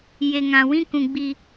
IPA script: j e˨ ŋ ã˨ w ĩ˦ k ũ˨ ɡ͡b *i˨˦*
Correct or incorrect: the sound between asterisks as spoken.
incorrect: i˨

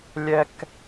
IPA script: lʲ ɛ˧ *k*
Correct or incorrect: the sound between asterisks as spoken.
correct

